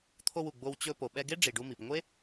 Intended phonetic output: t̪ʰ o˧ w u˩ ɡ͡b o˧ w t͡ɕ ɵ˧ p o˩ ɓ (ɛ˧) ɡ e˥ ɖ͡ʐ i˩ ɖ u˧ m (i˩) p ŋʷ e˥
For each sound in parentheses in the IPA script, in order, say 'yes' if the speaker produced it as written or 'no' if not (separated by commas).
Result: yes, yes